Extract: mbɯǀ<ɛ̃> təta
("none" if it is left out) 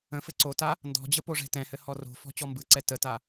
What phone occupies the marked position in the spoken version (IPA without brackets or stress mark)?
ɛ